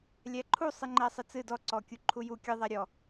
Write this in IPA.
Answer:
lʲ æ ǃʰ u sˤ ɨ ŋ͡ǃ æ sˤ ɨ t͡s ɨ d ɔ ǀ ɔ kʲ u ǃʰ u j u kʲ ɨ ðˤ æ ɾʲ ɔ

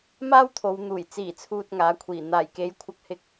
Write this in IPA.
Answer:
m aː˥ w t̪ʰ o˨˧ w n̪ uː˨˩ j t͡s iː˨˩ t͡sʰ uː˨ t̚ ŋ aː˨˥ kʷʰ iː˨˩ n̪ aː˨˩ j k e˨˥ j kʷʰ ɐ˧ k̚ h ɪ˧ k̚

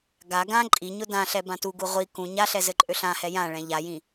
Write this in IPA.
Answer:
ɡ a ɡ ã ǃʼ i ɲ ʊ d ã ɬ ɛ b ã t u ɡ u ʁʷ i k ũ ɲ a ɬ ɛ z ɘ ǃʼ ø ɬ ã h ɛ j ã ɭ ɛ̃ ʎ a j ĩ

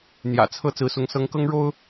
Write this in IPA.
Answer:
n̪ j ä̰˨˩ t͡sʰ ɤ˥˨ t͡s ɹ̩˨˦ s ʊ˨˦ ŋ s ɤ˨˦ ŋ k ɤ˦ ŋ ɻ o˦ ʊ̯

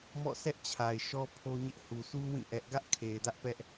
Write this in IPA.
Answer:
m ɔ̰˦˨ sʰ ɛ˦ ʔ t͡ɕʰ a˨ ɪ̯ ʃ ɔ˦ pʰ o˦ ɲ ɪ˦ ʔ h u˨ s u˦ w ĩ˦˨ ʔ ɛ˦ ʔ ɡ ä˦ ʔ kʰ e˨ ɪ̯ d ä˦ ʔ p ɛ˦ ʔ

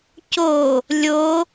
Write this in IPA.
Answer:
c o | lʲ o

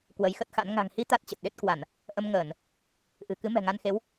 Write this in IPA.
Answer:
k w ə˨˦ j x ə˦˥ t̚ x a̰˧˥ n ŋ a̤˨˩ ŋ h i˧ t̪ a˦˥ t̚ t͡ɕ ə˨˩ t̚ ɗ e˦˥ t̚ k w a˧˩˨ n | ʔ ə˧ m ŋ əː˧˩˨ n | ʔ ɨ̤˨˩ k ɨ˨˦ m ɛ̤˨˩ ŋ a˧ n x e˨˦ w

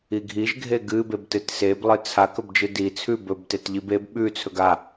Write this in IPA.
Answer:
i ɡʱ i ʒ ɡʱ e ɡ ɨ b e b t ɨ t s e b lˠ ɨ t͡sʰ a k ɵ b d͡ʒ ɨ d i t͡sʰ ʉ b ɵ b t e t ʎ i b e b ɓ ʉ t͡sʰ ɵ ɡ a

